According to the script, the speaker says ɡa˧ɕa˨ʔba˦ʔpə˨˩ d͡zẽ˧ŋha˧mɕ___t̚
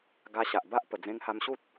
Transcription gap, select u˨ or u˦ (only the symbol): u˦